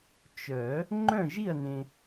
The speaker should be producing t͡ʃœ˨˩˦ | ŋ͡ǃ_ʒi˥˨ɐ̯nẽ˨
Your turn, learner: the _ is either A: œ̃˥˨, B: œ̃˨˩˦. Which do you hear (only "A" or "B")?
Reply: A